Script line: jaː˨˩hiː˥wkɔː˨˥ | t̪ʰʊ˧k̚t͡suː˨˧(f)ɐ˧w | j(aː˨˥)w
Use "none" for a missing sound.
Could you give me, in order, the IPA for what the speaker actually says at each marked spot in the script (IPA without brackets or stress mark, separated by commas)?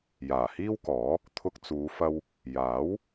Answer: f, aː˨˥